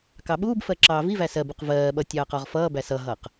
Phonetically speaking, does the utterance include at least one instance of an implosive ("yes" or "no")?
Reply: yes